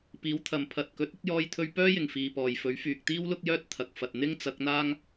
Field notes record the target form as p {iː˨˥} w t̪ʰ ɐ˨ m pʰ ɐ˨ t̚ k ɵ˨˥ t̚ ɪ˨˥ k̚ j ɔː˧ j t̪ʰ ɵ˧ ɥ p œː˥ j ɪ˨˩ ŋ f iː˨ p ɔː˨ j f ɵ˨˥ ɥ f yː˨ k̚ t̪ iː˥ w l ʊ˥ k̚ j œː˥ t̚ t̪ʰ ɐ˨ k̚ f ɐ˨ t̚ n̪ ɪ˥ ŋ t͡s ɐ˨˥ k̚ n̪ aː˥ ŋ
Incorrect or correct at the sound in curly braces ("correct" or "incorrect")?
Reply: correct